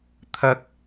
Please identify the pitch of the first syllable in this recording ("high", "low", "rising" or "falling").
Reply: high